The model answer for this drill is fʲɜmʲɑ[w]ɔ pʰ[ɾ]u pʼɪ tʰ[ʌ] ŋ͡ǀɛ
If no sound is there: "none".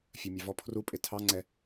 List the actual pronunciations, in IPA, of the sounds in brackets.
v, r, ɑ

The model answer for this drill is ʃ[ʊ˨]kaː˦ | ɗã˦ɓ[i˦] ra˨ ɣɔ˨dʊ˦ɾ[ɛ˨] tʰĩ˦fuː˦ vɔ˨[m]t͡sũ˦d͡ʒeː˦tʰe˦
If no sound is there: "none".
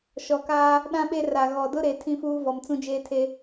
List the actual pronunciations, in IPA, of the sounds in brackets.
ɔ˨, e˦, e˨, m

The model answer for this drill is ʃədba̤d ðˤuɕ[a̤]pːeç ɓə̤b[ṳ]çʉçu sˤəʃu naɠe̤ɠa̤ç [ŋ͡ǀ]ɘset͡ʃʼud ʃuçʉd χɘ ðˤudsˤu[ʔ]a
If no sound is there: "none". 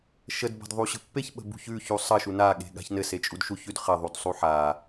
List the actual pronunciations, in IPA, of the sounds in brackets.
ə̤, ṳ, n, ħ

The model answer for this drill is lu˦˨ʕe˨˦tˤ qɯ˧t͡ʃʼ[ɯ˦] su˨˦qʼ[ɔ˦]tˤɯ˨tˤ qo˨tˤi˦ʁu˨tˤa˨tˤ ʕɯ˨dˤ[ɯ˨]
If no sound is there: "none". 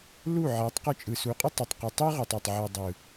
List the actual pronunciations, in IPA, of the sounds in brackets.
ɯ˨, o˦, ɯ˨

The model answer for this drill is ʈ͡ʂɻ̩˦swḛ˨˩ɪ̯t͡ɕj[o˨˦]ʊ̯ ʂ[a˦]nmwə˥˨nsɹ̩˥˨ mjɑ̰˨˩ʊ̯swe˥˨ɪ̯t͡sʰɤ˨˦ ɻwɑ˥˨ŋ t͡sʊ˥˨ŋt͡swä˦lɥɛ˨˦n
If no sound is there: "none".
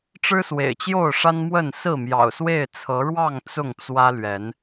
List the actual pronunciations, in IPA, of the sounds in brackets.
o˥˨, a˦

